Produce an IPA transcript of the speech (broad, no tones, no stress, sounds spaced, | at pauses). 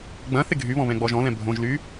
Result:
ɡ͡b ɐ̃ θ ɪ ɡʱ y β ɔ̃ β ɛ̃ ɡ͡b ɔ ʒ ɔ̃ l ɛ̃ bʱ õ ʒ l y